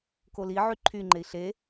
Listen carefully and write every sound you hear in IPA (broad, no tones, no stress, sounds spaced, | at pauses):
k o l i ʕ y ǃʰ y ŋ͡ǃ e i̯ ɬ e